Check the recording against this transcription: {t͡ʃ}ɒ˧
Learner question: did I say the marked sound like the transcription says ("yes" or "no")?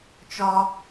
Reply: yes